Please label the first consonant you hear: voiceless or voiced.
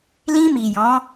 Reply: voiced